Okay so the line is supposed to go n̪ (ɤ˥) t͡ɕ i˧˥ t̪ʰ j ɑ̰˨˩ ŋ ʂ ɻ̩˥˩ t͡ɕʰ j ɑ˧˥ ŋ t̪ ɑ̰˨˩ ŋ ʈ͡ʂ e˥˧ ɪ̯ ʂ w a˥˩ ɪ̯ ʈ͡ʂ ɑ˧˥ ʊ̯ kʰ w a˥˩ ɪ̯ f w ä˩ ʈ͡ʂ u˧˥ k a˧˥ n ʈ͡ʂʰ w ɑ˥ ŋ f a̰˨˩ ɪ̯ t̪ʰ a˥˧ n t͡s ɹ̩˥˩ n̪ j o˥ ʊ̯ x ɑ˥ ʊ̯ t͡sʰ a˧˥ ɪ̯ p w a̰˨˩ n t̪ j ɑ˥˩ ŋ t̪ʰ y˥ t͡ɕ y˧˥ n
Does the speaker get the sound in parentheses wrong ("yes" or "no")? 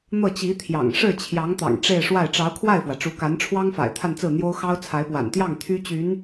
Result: yes